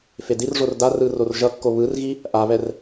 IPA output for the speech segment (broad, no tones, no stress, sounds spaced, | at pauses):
f e d i r ʐ o r d a r ɯ r o r ʒ ʌ kː o β ɯ r ɣ i | ʔ a β ɛ r